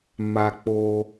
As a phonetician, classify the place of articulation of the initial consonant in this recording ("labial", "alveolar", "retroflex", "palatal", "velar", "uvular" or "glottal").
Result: labial